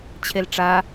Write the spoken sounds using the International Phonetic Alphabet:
t͡ɕʰ e l ʈ͡ʂ a

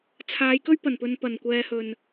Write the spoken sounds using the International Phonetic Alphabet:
t͡sʰ aː˨˧ j k ɵ˥ ɥ p ɐ˨˩ n p ɵ˨ n p ɐ˨˩ n kʷ ɛː˨ h ɵ˨˩ n

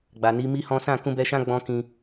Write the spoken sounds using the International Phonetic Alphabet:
ɡ͡b a˨ n i˨˦ m i˦ h ɔ̃˦ s ã˦˨ k ũ˧ b ɛ˧ ʃ ã˦ ɡ͡b ɔ̃˦ k ĩ˧

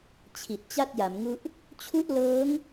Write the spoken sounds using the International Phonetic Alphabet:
t͡ɕʰ i˨˩ t̚ t͡ɕ a˥˩ t̚ j a˩˦ m ŋ u˦˥ ʔ | t͡ɕʰ u˥˩ ʔ l ɤː˦˥ ŋ

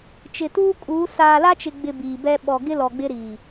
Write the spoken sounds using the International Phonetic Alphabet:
t͡ʃ ɪ˨ t uː˦ kʼ uː˨˦ s aː˨ l a˦ t͡ʃ ɪ˨ ɡ͡b ɪ˨ b iː˨ b ɛ˦ ɓ ɔ˨ ɡ ɪ˦ l ɔ˨ ɡ͡b ɪ˦ ɾ iː˨

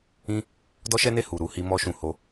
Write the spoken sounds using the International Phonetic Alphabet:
ĩ˦ | d ɔ˦ ʃ ɛ˦ n e˦˨ h u˨ ɾ u˨˦ h i˦ m ɔ˧ ʃ ũ˨ h o˧

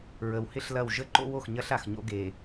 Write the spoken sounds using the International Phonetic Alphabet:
ɹ ə˨ w h ɪ˦ ɬ l ɐ˦˨ w ʒ ə˦ ǃ o̰˦ w o˨ x ɲ ɐ˦ ɬ a˨ x ɲ o̰˦ ɡ e˨

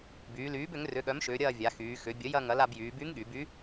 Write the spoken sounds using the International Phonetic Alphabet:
b yː˩˧ l yː˩˥ b ʏ˩˥ ŋ r ʏ˩˧˩ ɠ œ˩˥ m ʃ ʏː˩˧ ɾʲ ɐː˦˨ vʲ a˩˧ x yː˩˧ x ʏ˩˧ bʲ ə˩˥ j ɐ˦˨ ŋ ɐ˩˥ l a˦˨ b j yː˩˧ b y˧˥ ŋ ɠ y˩˧ b y˧˥

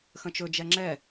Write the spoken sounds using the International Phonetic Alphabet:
x ə̃ t͡ʃ ɵ d͡ʒ ɛ ŋ͡ǁ ɛ

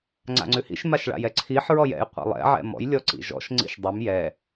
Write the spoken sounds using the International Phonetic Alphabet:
ŋ͡ǀ a̰ ŋ͡ǀ ʉ h ḭ ʃ m a ʃ ɭ a̰ j ɛ ǀʰ i ħ ɹ ɔ j ɛ̰ j qʷ ḭ lˠ ɛ̰ ʕ ɛ̰ m ɔ̰ j lʲ ɔ ǀ ḭ ʒ ɔ̰ ʃ ŋ͡ǀ ḭ ʃ dˤ ʉ m j ɛ

